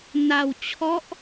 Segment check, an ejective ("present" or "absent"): absent